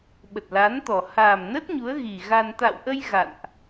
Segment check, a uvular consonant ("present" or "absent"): absent